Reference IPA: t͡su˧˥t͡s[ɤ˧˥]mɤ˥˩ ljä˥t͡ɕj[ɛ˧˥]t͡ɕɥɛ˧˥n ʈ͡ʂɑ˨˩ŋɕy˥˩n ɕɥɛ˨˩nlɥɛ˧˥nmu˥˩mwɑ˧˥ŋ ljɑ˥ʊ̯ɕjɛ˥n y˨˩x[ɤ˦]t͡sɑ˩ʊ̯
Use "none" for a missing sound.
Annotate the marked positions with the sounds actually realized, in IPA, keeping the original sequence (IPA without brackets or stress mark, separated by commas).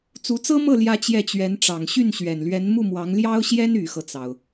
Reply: ɤ˥, ɛ˥˩, ɤ˦